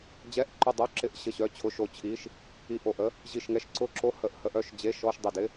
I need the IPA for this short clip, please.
d͡ʑɛ˧˥˧ʔǃʏ˦˨dˤo˧˥˧ ǁɪ˧˥˧ʔ ɕə˦˨ɕœ˧˥˧t͡ɕʰʊ˧˥˧ ʃo˦˨t͡ɕʰi˧˥˧ʃ | i˦˨ʔo˦˨ʔə˧˥˧ | ʑi˦˨ʃŋɛ˧˥˧ʃ ǀʊ˦˨ǁo˧˥˧ hə˦˨ʔhə˧˥˧ʔœ˧˥˧ʃ d͡ʑe˧˥˧ʃɔ˧˥˧ʃ dˤɪ˦˨ dɪ˧˥˧

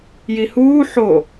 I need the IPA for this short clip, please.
jihuː ħo

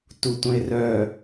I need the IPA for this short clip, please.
tutʷœ̃ɪ̯rœː

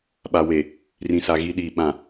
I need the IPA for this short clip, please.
ɓa˨we˨ | rĩ˨sa˨ ɣi˦ɗiː˨ ɓã˨

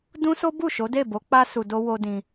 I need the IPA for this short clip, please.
dũ˦so˦ bu˦˨ ʃo˨˦de˦˨ bo˨˦k͡pa˧ su˨do˧ wo˧ dĩ˧

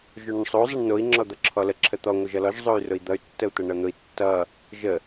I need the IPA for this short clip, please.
ʒoɳʊɳsˤo zˤʌɳnoi̯ ŋ͡ǁɔd̪ʌǁʰɔlə ǁʰət̪ɔ ŋʷəʒʌlɔʒ zˤoy̯rʊi̯d̪ʌy̯ tːəu̯t̪ʌɳʌn̪ʊi̯ tːʌ | ʒə

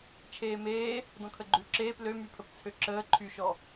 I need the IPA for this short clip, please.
t͡ʃʰeːmeː | dɔ̃kʰəɡ͡ǃʉ ǁeːp lømypʰəpt͡sʰø ǁəː ǃʰyʃɔ

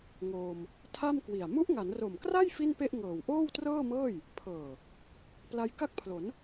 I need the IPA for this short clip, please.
ŋoː˧m | tʰa˥˩mkwi˨˩a̯ mu˦˥ʔŋa˩˦nro˨˩mkra˥˩j fi˥˩npe˥˩ʔŋɤː˨˩w ʔoː˥˩wtrɤː˥˩mɤː˥˩j | pʰɤː˨˩ | pla˧jka˥˩k̚pʰlo˩˦n

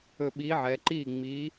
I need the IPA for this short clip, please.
ɵ˧˩ ɓiː˨˥ʕɛː˩˧ǃiː˥˩ ŋ͡miː˨˥

